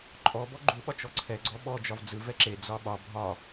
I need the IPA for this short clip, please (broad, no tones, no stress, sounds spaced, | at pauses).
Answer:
ǃʼ ɔ b ɔ ɡ͡ǃ u ɓ ɒ t͡ʃ ɔ ǀʰ ɛ ɡ͡ǀ ɔ ɓ ɔ d͡ʒ ɒ v d͡z ɯ v ɛ ǁ e d͡z ɒ ɓ ɒ bʱ ɒ